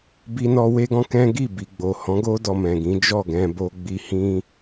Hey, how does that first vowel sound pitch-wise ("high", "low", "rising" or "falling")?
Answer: high